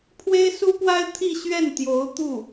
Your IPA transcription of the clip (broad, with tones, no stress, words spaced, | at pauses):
pʰwe˥ɪ̯su˥pwa˥ɪ̯ t̪ʰi˥˧ɕɥɛ˥˩nt̪jo˧˥ʊ̯ t̪u˥˩